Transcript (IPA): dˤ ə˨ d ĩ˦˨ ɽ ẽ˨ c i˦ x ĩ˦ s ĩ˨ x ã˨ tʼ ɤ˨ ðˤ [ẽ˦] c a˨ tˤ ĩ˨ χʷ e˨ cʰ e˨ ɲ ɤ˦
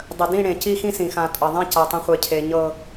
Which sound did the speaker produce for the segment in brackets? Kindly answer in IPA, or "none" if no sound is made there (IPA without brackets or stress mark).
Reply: ẽ˦